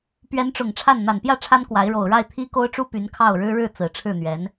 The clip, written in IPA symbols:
p ɥ ɛ˧˥ n ʈ͡ʂ ʊ˨˩ ŋ ʈ͡ʂʰ a˥˩ n n̪ a˨˩ n p j ä˥˩ ʈ͡ʂʰ a˥ n k w a˧˥ ɪ̯ ɻ o˨˩ ʊ̯ ɻ a˥˩ ɪ̯ t̪ʰ i˥ k o˥ ʊ̯ ʈ͡ʂ u˥ p y˧˥ n kʰ ɑ˥˩ ʊ̯ ɻ ɻ̩˥ ɻ ɻ̩˥˩ t͡s ɹ̩˨˩ ʈ͡ʂʰ ɻ̩˥˩ n̪ ɥ ɛ˧˥ n

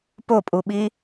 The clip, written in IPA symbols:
p o pʼ u ɓ i

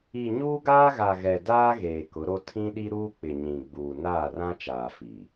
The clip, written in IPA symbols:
i˨ ɲ uː˦ ɡ aː˦ ɣ a˨ ɣ ɛ˨ d aː˦ ɣ eː˨ k ʊ˨˦ ɾ o˦ tʰ ĩ˦ ɗ i˦ ɾ uː˦ k͡p ɪ˨ ɲ ĩ˨ ɡ͡b uː˨ n aː˦˨ r ã˦ t͡ʃ aː˨ f i˨

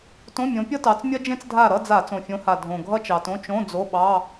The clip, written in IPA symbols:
t õ˧˥˧ mʲ õ˨˦ pʲ ʌ˥ t ɑ˨˦ t͡s mʲ ɐ˥ d͡ʒ ẽ˥ t͡s dʱ a˦˨ ɾ ʌ˧˥˧ d͡z a˧˩˧ t͡s õ˨˩ fʲ õ˨˦ h a˨˩ dʱ õ˨˩ ɡʱ ʌ˥ t͡ʃ ɑ˨˩ t õ˧˥˧ t͡ʃ õ˧˥˧ d͡z o˧˥˧ ɓ ɑ˧˥˧

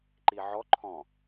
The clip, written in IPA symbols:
ǃ i ʕ ɔ ǃʰ ɔ̃

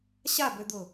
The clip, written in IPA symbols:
ɕ a b ø d̪ ʊ

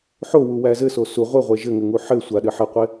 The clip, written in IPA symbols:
ħ o w u w æ z ɘ s o s u ʁʷ ɘ ʁʷ e ʒ ɘ ŋ ɘ ŋ u ħ ɘ sʷ a ɗ ɘ ħ ɘ qʷ e

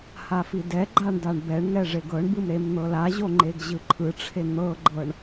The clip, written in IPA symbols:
h a f i d ɛ ɡ͡ǃ a ɳ d a ɳ b ɛ ɳ ŋ ɛ ʐ e ɡ ɤ ɳ b ɯ m ɾ e m n̪ ɤ l a ʑ o ŋ͡ǃ e ɡ ʑ ɯ ǃʰ ɯ ʈ͡ʂʰ e n̪ ɤ ɡ͡ǃ ɤ ɳ

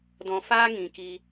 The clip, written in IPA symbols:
d ɔ̃˧ f aː˦ ŋ ĩ˨ k i˧

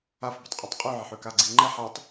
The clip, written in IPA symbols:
a f b ə tˤ qʼ ʉ tˤ qʼ ʉ ʕ ə ħ ʉ k a ɡ͡ǀ i ŋ͡ǃ ɛ ħ a tˤ

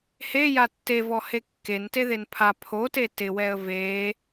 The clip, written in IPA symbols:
h e j a tː e v ɔ h e kː e n t e ð e n pʰ a pʰ o t e t ɪ w ɛ ə̯ v e

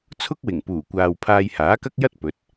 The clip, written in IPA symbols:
t͡sʰ ʊ˥ k̚ w ɪ˨˩ ŋ p uː˨˩ kʷ aː˨ w pʰ aː˧ j h aː˨˥ k ɐ˥ k̚ j ɐ˥ t̚ p ɵ˨˥ t̚

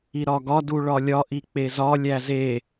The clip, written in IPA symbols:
i ɾ ɒ ɡ ɒ d u ɭ ɒ lʲ ɒ ʔ i k͡p e z ɒ lʲ æ z e

